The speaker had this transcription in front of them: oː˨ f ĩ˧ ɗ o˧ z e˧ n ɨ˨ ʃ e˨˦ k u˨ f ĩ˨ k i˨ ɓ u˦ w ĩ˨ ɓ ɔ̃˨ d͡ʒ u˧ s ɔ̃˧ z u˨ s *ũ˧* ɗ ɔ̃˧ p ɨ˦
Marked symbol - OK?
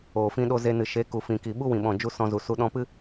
no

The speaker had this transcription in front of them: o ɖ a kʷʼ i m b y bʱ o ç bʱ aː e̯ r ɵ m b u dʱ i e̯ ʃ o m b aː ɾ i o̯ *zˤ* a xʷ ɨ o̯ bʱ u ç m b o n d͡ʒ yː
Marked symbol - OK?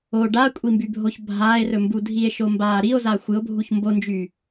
no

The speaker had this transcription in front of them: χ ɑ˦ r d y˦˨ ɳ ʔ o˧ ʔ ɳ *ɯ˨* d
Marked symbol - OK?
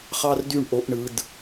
yes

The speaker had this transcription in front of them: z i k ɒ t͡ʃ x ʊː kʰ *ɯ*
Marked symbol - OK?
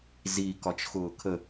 no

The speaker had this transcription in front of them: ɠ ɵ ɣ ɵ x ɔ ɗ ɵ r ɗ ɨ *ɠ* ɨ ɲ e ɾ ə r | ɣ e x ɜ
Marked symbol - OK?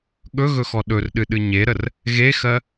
no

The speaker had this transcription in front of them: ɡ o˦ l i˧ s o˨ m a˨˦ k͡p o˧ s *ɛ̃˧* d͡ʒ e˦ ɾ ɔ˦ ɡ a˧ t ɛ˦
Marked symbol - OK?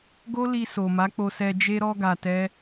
no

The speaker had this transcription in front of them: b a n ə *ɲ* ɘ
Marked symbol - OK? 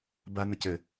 no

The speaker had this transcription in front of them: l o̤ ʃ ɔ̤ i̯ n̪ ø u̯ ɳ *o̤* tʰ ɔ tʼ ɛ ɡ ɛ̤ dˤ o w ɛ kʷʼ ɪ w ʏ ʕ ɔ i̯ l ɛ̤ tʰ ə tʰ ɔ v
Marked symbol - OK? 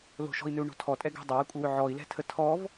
yes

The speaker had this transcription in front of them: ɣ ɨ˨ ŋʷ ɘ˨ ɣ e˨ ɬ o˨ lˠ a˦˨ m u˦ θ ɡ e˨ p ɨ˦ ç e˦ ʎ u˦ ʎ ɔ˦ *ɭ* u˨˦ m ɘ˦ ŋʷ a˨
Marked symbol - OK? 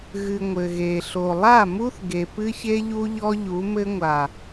no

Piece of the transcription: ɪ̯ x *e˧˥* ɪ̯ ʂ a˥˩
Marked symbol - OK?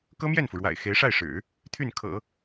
yes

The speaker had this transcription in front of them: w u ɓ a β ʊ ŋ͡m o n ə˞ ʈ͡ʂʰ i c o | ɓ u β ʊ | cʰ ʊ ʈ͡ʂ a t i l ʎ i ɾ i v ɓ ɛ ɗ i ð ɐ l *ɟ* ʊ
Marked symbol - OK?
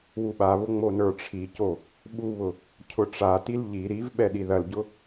yes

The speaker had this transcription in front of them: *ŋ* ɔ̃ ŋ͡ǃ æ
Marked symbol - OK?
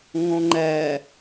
yes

